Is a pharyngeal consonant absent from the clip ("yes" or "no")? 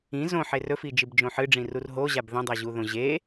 no